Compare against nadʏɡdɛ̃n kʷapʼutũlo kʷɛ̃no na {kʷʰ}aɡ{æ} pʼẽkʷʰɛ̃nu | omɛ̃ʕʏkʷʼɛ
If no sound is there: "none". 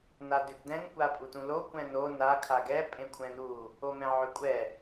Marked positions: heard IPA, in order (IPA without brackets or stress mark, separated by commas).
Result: kʰ, ɛ